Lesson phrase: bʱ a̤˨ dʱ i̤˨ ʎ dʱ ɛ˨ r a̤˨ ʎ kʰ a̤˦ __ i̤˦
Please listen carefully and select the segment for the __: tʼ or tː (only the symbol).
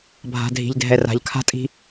tʼ